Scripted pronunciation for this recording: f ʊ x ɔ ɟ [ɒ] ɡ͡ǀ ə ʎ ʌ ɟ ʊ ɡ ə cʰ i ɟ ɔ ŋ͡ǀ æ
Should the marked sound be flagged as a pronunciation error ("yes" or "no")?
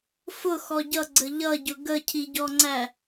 yes